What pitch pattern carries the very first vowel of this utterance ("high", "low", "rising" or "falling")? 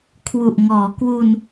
low